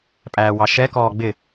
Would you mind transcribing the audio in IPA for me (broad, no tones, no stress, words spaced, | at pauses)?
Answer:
pʼæːwɑʃɛ kɔːɡ͡bɪ